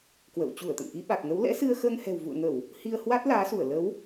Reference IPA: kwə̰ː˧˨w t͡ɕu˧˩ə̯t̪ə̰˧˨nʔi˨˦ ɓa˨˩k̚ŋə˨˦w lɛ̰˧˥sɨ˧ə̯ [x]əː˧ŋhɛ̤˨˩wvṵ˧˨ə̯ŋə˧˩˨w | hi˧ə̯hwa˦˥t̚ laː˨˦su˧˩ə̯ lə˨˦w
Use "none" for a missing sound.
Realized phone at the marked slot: x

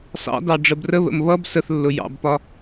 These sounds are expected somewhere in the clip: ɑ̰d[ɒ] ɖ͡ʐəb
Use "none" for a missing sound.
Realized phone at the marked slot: ɑ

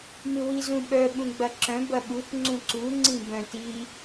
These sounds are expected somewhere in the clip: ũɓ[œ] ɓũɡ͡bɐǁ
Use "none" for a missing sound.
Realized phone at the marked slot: œ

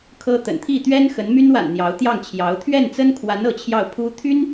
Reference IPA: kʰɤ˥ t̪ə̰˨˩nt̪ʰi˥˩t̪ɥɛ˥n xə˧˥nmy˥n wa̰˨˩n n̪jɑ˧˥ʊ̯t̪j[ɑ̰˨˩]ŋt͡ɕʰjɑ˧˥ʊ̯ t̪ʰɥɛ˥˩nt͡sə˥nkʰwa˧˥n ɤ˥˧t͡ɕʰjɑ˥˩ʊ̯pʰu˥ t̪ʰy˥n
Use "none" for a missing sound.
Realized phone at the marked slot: ɑ˥˩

